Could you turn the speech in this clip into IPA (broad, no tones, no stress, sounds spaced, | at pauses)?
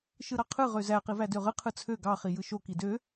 ʃ ɯ ɾ ɑ qʰ ɯ ʁ ø z æ q i v æ d ø ʁ ɯ qʰ ɯ t͡sʰ ø ɡ ɑ χ i j ɯ ʃ o k i d ø